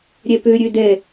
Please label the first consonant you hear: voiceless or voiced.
voiced